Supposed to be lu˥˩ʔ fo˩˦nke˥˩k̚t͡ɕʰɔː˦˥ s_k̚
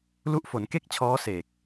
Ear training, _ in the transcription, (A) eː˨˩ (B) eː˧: A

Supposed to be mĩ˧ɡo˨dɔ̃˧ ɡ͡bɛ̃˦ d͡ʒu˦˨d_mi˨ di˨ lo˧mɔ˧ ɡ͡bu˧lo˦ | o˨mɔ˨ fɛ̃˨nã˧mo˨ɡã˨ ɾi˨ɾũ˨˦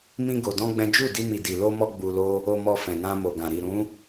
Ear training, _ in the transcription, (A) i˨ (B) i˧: B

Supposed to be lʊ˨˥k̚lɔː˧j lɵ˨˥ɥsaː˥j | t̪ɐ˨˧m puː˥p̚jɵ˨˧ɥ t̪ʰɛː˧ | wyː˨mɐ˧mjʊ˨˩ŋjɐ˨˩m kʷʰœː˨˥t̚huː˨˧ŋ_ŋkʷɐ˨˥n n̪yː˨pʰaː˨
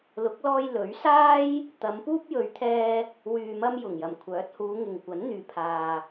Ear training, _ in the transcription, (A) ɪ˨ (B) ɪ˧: A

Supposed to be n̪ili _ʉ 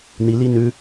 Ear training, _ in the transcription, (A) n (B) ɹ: A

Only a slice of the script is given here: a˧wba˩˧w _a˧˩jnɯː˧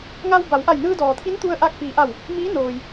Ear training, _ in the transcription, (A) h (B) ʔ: B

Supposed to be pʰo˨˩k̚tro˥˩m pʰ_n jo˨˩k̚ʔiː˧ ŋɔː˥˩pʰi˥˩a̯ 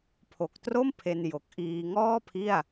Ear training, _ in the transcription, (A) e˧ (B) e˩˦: A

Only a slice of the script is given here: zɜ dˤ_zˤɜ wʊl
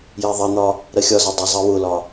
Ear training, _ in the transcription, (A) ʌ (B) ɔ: A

